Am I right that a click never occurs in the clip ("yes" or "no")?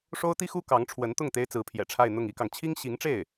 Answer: yes